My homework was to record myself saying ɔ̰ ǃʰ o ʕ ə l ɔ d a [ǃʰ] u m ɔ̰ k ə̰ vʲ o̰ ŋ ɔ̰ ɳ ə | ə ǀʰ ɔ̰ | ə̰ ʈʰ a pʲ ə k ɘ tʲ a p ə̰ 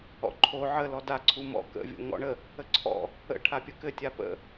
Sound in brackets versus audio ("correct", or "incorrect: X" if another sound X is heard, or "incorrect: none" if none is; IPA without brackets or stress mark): incorrect: ǀʰ